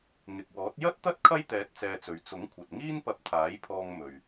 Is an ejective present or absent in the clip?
absent